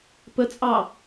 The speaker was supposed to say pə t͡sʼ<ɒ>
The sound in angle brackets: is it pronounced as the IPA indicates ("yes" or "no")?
no